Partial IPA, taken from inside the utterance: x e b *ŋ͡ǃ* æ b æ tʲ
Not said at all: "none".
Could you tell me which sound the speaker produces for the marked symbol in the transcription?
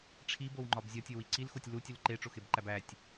ǃ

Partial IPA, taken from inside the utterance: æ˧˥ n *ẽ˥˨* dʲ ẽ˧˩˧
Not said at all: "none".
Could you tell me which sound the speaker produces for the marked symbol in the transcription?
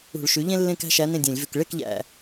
ẽ˥˨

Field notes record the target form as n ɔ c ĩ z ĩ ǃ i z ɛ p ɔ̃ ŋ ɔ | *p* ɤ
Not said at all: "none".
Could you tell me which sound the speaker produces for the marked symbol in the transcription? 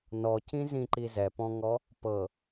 p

